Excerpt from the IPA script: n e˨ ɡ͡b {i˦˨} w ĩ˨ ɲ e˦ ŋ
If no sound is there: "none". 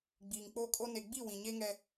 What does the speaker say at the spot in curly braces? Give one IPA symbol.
i˦˨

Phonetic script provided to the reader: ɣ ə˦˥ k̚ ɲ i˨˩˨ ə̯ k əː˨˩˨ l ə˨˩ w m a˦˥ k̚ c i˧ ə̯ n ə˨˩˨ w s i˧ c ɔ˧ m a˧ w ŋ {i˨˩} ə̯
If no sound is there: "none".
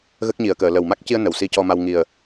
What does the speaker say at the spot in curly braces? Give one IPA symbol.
i˨˩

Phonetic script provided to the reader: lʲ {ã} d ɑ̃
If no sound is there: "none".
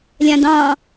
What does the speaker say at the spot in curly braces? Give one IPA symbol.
ã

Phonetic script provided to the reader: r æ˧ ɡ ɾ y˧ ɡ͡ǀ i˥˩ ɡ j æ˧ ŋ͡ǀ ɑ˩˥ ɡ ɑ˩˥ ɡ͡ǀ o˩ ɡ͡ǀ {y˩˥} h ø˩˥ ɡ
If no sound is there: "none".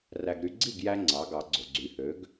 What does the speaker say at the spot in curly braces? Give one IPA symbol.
y˩˥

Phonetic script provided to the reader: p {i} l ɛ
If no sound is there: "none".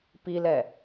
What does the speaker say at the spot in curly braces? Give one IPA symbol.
i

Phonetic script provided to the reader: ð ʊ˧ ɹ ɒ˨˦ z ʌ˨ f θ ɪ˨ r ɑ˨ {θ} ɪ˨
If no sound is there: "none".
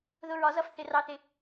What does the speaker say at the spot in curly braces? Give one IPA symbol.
θ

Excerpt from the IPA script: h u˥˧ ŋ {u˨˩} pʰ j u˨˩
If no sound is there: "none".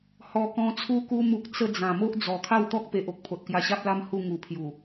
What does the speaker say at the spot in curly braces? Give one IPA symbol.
u˨˩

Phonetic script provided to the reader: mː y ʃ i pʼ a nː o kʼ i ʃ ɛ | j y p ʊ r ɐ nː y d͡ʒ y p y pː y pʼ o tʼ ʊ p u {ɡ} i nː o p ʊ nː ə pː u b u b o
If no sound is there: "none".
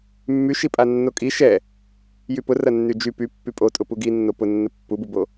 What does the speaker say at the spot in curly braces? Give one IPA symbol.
ɡ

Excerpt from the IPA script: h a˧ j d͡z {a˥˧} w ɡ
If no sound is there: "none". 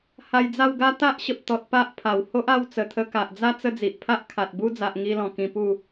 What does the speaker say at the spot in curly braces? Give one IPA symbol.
a˥˧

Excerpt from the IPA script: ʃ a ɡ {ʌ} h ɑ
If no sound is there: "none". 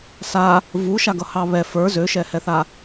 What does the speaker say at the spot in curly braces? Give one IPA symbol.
ʌ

